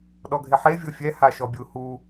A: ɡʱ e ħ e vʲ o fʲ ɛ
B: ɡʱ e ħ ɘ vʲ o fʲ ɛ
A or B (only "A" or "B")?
A